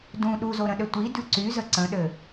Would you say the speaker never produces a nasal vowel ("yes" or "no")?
no